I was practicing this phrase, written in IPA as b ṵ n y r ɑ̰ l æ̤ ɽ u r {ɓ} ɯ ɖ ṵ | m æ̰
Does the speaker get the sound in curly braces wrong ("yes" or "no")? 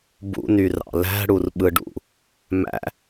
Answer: no